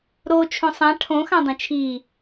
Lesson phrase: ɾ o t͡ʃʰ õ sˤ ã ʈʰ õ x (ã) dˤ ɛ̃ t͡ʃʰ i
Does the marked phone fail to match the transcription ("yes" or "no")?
no